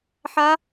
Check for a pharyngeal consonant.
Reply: present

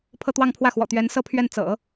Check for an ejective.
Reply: absent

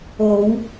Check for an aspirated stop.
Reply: absent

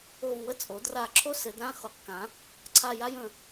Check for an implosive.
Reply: absent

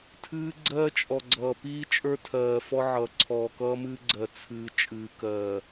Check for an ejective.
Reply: present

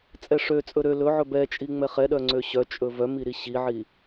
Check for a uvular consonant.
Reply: present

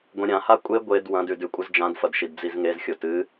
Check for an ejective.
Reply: present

